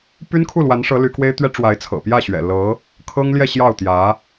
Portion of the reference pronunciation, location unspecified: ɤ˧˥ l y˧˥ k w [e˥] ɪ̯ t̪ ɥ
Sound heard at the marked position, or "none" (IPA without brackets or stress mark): e˥